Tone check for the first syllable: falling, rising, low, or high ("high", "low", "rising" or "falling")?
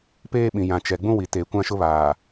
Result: high